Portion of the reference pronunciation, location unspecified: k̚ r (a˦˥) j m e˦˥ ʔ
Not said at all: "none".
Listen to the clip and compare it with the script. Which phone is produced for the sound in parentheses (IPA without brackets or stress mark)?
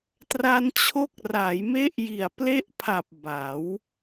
a˩˦